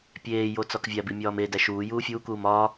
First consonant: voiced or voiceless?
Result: voiceless